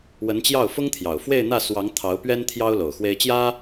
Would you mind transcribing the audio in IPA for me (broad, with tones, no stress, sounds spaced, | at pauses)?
w ə˧˥ n t͡ɕ j ɑ˥˩ ʊ̯ f ʊ˥ ŋ t̪ʰ j ɑ˨˩ ʊ̯ f w e˥˧ ɪ̯ n̪ ä˥˩ s w ɑ˧˥ ŋ t̪ʰ ɑ˧˥ ʊ̯ p ɥ ɛ˥ n t̪ʰ j ɑ˥ ʊ̯ l o˨˩ ʊ̯ x w e˥ ɪ̯ t͡ɕ j ä˥